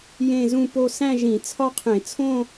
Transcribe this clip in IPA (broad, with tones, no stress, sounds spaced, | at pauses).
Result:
j ẽ˥˧ z ũ˥˧ p o˥˧ s æ̃˥˧ ʒ ĩ˧˩˧ t͡sʰ ɒ˥˧ qʰ ẽ˧˩˧ t͡sʰ õ˥˧